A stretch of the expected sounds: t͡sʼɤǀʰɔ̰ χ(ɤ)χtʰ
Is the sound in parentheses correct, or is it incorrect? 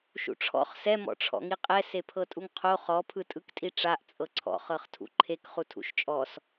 correct